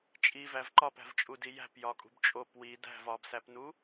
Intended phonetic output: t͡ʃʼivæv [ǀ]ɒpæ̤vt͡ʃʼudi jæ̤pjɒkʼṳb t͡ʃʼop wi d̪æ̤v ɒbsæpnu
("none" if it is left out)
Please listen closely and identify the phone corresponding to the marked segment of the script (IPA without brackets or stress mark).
ǃ